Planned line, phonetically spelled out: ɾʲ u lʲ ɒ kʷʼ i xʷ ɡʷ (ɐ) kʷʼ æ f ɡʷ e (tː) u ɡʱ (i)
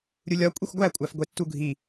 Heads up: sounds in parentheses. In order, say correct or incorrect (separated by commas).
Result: incorrect, correct, correct